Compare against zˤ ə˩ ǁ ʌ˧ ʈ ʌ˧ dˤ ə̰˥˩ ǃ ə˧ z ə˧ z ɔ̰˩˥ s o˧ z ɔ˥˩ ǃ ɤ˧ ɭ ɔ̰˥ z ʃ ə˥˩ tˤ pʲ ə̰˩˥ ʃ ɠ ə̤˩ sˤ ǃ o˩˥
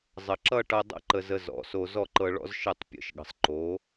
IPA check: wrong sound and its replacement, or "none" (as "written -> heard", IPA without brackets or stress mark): none